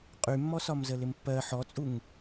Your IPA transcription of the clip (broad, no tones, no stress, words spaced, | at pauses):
qʼymːɔsɒm zəlɪmpːɜ ħɔt͡sʼuŋ